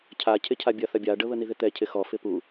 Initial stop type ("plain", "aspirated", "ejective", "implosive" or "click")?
aspirated